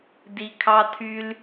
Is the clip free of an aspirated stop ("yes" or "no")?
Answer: no